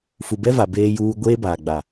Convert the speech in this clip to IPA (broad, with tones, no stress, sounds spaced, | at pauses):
f u˨ b ɛ˦ v a˨ b eː˦ j uː˦ ɡʷ eː˦ b aː˨ ɡ͡b a˨